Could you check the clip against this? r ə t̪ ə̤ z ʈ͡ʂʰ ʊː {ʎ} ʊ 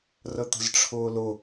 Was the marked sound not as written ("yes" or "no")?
yes